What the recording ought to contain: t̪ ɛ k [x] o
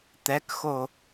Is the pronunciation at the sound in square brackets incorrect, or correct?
correct